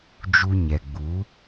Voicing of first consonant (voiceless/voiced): voiced